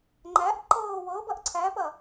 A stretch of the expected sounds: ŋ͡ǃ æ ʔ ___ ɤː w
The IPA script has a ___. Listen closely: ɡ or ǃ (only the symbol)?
ǃ